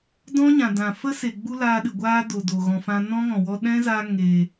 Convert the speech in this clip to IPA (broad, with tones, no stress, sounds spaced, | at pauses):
d ɔ̃˦ ɲ ã˨ d ã˨ f ə˦ s e˨ ɡ͡b u˦ l aː˧ ɗ ɨ˨ ɡʷ aː˦ d o˨ d o˨ ɣ ɔ̃˨ f ã˧ n ɔ̃˦ ŋ ɔ̃˨ w ɔ˧ ɗ ɛ̃˦ z a˧ ŋ e˨